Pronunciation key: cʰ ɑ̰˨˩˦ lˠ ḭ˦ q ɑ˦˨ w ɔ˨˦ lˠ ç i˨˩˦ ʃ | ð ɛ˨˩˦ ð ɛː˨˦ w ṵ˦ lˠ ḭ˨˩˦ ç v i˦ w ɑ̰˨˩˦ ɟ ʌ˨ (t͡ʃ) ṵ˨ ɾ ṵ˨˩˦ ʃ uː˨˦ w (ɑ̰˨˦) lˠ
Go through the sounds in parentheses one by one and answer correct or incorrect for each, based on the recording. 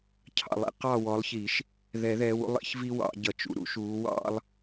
correct, incorrect: ɑ̰˦

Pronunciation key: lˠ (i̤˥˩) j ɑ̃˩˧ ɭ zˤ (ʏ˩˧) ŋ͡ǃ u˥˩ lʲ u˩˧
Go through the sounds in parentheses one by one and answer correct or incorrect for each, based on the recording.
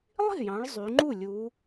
correct, incorrect: y˩˧

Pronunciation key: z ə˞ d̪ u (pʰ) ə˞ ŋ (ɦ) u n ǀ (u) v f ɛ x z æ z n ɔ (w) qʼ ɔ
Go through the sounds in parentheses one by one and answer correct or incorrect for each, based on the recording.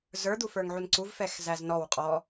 incorrect: f, incorrect: ʕ, correct, correct

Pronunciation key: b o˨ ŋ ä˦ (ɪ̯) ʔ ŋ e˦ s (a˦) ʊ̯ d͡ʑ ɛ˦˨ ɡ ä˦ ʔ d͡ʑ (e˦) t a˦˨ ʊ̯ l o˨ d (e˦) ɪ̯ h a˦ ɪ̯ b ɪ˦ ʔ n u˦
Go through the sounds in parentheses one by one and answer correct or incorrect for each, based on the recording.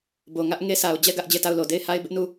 incorrect: none, incorrect: a˨, incorrect: e˦˨, incorrect: e˦˨

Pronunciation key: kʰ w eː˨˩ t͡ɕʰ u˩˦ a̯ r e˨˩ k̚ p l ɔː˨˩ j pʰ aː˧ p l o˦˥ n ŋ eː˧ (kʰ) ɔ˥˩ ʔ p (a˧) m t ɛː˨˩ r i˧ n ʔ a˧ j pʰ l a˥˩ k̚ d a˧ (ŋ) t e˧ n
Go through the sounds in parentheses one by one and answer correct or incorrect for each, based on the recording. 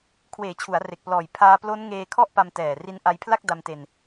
correct, correct, incorrect: m

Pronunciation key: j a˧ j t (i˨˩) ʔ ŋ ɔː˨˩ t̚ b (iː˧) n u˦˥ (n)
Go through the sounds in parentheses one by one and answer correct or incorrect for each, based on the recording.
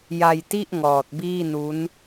incorrect: i˥˩, incorrect: iː˥˩, correct

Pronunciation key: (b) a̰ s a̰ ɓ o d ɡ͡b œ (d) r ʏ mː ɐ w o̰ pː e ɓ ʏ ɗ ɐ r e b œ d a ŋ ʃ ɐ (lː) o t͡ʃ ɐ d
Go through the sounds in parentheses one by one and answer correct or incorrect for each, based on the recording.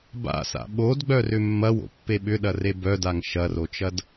correct, incorrect: none, incorrect: r

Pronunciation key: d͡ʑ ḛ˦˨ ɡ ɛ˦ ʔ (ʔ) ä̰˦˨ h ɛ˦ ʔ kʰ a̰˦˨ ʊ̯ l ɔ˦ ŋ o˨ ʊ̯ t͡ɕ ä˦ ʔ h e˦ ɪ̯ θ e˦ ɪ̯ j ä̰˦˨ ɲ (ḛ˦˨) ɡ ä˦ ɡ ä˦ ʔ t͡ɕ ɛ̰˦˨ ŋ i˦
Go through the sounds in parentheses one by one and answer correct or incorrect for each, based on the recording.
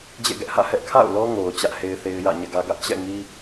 incorrect: h, incorrect: ɛ̰˦˨

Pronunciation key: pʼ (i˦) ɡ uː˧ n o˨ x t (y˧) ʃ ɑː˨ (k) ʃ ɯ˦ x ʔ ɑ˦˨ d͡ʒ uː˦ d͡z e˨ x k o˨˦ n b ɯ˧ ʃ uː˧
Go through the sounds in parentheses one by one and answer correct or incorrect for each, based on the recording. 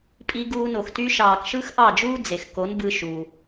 incorrect: i˧, correct, correct

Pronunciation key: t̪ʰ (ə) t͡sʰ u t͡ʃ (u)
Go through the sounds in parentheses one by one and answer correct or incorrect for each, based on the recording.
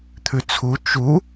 incorrect: ʉ, correct

